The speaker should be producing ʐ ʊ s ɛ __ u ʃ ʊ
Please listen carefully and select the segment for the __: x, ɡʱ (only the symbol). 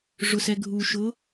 ɡʱ